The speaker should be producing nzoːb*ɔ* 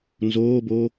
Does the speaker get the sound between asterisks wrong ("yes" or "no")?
yes